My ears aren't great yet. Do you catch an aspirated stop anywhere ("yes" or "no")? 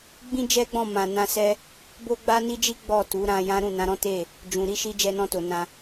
no